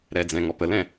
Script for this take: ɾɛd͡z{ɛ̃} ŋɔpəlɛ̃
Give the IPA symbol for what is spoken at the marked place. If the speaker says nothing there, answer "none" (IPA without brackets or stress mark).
ɛ̃